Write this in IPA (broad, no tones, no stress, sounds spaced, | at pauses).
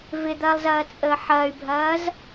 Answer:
v ɪ d̪ ɐː lˠ z ɐː t͡sʼ əː ħ ɐː y̯ bʱ ɐː z